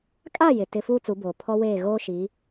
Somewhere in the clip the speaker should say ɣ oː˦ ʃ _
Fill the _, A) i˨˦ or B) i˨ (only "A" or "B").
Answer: A